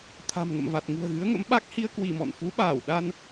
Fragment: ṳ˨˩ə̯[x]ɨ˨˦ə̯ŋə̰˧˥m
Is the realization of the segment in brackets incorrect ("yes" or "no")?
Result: yes